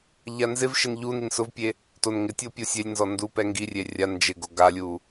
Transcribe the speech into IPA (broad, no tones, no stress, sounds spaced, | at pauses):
ʎ a n z ɪ v ʃ ɪ n ʎ u n i n s ʊ v pʲ e | t o n ŋ ɪ tʲ o pʲ o sʲ e lʲ n z ɔ n d u p ɛ ŋ ɡ i rʲ e rʲ a n d͡ʒ ɪ ɡ o ɡ a lʲ u